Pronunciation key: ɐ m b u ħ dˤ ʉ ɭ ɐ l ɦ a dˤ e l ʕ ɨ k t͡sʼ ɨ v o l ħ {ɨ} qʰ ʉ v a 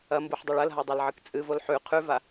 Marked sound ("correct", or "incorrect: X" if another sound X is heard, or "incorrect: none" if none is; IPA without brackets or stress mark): incorrect: ʉ